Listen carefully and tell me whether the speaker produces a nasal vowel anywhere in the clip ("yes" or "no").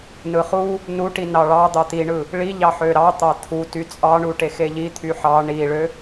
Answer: no